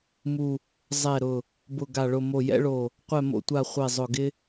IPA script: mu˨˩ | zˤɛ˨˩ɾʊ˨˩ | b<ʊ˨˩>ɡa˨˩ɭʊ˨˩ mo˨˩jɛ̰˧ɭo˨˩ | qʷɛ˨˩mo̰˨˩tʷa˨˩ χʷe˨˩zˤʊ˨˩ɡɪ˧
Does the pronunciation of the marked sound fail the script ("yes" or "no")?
no